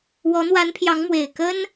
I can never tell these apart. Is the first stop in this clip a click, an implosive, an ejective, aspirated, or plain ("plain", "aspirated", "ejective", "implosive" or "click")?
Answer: aspirated